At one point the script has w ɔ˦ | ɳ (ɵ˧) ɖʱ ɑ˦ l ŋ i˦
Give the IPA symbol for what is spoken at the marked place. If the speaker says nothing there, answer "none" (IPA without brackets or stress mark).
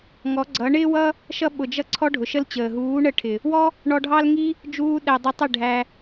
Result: ɔ˧